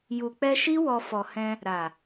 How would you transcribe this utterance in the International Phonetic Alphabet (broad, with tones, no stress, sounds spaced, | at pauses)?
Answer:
j u˨ k͡p ɛ˧ ʃ i˦ w ɔ˧ f ɔ˨ h ɛ̃˧ | ɾ a˨